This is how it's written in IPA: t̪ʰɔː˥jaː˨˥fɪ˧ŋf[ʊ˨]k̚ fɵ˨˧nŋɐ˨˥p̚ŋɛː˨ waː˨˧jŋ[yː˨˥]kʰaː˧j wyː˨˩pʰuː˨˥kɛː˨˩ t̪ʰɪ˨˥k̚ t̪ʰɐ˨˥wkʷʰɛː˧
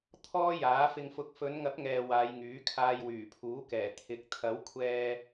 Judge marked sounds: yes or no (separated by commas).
no, yes